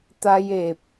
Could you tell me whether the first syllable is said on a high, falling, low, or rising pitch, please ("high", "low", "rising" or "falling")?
high